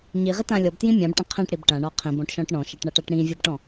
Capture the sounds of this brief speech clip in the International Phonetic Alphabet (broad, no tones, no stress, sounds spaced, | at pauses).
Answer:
ɲ i ʁ ɪ t ã lʲ ɔ b t j ĩ mʲ ã b ʈ ə̃ qʰ ĩ ʈ ɽ i b ʈ ã ɳ ɔ qʰ ĩ b ɔ̃ ʈ ʃ ɔ̃ ʈ ɳ ɔ̃ ʃ ʌ ʈ ɳ a ʈ a ʈ ɽ ĩ vʲ ʌ b ʈ ɔ̃